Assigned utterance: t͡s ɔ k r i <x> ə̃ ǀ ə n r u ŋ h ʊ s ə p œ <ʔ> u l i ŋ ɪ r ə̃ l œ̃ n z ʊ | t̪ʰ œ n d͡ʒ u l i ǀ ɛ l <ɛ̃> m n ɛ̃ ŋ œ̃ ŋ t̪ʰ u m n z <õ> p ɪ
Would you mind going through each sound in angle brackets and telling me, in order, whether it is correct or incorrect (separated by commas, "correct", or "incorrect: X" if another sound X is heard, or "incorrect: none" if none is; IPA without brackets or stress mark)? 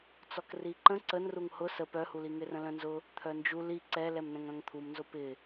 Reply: incorrect: ǃ, incorrect: h, incorrect: ɛ, incorrect: o